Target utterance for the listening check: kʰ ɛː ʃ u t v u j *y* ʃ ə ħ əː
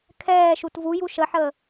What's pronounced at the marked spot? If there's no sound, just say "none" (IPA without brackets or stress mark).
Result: u